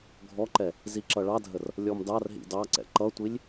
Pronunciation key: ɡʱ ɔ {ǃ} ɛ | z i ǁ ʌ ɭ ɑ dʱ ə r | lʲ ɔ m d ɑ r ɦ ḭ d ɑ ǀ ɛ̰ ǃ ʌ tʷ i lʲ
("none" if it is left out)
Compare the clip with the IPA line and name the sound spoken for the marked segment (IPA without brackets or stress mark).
ǃ